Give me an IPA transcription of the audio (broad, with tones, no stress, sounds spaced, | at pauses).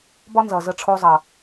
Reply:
b ɒ˦ n z ʌ˨ z ə˧ ʈ͡ʂʰ o˧ zˤ ʌ˨